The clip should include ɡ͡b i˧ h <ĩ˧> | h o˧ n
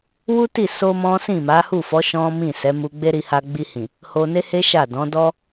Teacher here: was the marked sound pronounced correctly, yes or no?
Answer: no